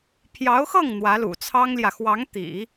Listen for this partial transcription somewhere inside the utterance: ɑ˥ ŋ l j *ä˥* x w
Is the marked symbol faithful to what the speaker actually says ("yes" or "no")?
no